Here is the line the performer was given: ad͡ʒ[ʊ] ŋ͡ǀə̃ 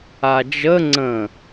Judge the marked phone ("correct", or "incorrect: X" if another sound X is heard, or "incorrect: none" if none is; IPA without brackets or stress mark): incorrect: ə